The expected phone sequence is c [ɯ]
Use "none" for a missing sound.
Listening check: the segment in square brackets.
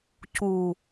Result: u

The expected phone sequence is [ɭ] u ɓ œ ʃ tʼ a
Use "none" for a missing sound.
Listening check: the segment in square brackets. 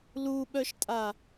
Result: l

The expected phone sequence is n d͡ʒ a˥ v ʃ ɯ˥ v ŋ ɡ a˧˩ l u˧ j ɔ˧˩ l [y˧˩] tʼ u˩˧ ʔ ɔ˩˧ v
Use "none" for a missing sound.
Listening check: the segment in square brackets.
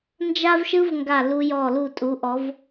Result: u˧˩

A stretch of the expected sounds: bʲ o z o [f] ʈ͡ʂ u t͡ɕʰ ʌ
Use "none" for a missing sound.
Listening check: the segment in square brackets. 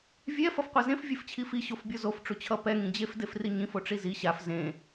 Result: f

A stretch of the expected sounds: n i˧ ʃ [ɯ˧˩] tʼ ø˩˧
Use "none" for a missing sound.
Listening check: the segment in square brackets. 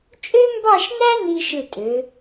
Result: ɯ˧˩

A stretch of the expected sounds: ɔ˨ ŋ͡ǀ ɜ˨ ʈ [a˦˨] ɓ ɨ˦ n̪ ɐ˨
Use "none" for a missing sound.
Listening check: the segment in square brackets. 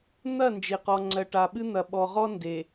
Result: a˨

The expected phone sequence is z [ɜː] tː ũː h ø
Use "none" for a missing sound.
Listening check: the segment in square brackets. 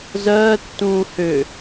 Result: ɜː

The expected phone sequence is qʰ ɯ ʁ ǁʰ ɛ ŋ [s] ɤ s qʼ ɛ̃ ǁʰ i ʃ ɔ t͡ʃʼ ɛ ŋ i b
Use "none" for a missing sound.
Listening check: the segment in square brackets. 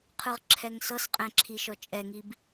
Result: s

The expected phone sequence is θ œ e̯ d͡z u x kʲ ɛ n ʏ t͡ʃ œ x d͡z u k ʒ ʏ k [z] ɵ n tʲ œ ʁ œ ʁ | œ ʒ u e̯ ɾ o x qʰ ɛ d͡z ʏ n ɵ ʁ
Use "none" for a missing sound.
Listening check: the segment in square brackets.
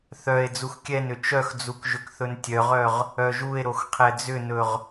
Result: θ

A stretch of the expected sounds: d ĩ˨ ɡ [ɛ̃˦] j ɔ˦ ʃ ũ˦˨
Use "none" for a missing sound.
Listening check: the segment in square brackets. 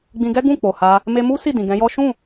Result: ɛ̃˨˦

